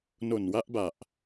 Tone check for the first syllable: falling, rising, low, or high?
low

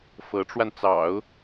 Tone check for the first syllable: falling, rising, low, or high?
rising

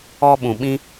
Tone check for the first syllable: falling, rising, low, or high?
high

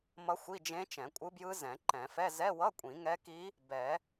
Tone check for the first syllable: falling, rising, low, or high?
rising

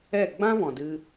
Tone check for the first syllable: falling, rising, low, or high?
falling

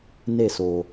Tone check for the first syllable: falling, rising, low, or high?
falling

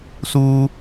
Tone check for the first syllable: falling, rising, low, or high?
high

